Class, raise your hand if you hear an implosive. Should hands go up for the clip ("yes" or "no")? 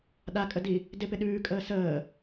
yes